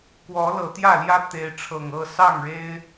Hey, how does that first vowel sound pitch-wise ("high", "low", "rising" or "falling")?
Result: rising